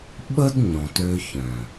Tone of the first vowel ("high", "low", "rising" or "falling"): high